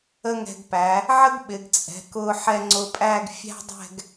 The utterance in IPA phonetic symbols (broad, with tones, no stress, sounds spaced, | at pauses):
ə˥ ŋ ɛ̤˧ ɡ p æ˩˧ | ʕ ə˥ ɡ ɓ ɪ˩˧ ɡ t͡sʼ ɛ̤˩˧ k ʊ˧ ħ ɛ˧ ŋ͡ǀ ʊ˧ pʼ æ˥˧ ɡ fʲ æ̤˥ dˤ ɛ̤˥˧ ɡ